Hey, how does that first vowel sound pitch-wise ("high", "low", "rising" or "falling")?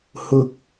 high